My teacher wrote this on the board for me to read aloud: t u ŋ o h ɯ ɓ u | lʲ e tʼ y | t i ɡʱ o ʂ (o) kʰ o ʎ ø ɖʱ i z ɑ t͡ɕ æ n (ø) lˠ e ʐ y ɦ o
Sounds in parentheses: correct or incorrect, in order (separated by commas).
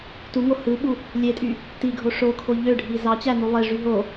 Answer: correct, incorrect